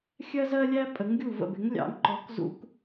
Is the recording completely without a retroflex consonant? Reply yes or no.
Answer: yes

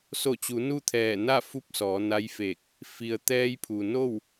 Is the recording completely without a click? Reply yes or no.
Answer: yes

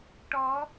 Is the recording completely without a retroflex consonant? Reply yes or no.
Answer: no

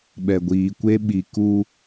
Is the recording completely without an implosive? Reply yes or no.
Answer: no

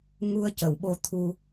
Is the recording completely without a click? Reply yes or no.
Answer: yes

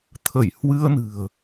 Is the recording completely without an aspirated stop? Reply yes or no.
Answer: no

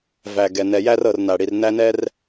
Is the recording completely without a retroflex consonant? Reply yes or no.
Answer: no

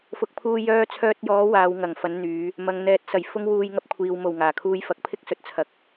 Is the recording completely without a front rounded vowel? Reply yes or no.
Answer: no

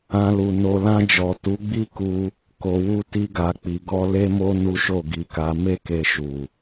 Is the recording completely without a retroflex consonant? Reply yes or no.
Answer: yes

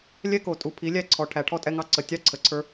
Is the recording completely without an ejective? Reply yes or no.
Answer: no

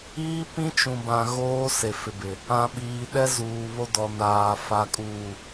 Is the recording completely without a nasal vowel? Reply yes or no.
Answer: no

